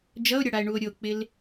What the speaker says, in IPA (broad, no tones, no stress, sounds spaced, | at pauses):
d͡ʒ ʌ o̯ ɾʲ ʌ ɽ a e̯ ɳ u o̯ ɾʲ o k͡p ɪ l